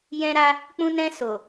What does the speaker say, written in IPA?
jɛ̃˦ɾa˦ | k͡pũ˧nɛ̃˧ so˨

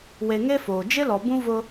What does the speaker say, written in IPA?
we˨ŋe˦foː˨ d͡ʒɪ˦lɔ˨bũ˦ vʊ˦

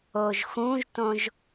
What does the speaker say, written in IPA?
oʒxũʒtõʒ

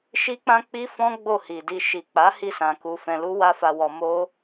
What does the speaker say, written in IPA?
ʃi˦k͡pã˦k͡pi˦fɔ̃˦ ɡ͡bo˦˨hi˨di˧ ʃi˨k͡pa˨˦ hi˦˨sã˨ ku˧fɛ̃˧ lu˦wa˦fa˧wɔ˧ mo˦

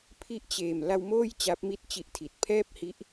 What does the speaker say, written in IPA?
pʰi˥˩ʔt͡ɕeː˨˩m la˧wmoː˥˩j t͡ɕa˦˥p̚mi˥˩t̚t͡ɕi˦˥ʔtʰi˨˩t̚ pʰɛː˥˩p̚hi˦˥ʔ

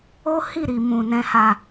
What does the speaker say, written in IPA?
o˦hi˦˨ ɾi˨mũ˨ nɛ̃˨ha˨

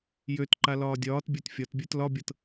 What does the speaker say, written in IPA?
jøtǃa lɒːdʲɒːtbʲə˞t fʲɒtbʲə˞t lɒbʲɤt

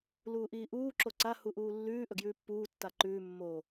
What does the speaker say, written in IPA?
luːʔiːʔuː ǁoǀa huʔuːlːʉː ʔɵɡjʉːpːuː tːaǃʉː mːo

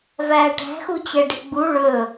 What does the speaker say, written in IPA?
væːʈæ̤xut͡ɕɛ ɖe̤ɡ͡bu ɭɵ

